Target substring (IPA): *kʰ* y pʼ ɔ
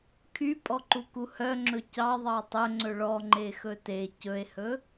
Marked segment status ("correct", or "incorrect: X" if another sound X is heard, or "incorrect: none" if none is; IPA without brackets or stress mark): correct